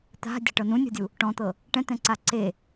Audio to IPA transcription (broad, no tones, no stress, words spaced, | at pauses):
t̪a̤dʲa̤ʈɤ nũnʲɔ̤dʲu | ʈɔ̃t̪ɤ | ʈɛ̃t̪ɛ̃ǀa ǀe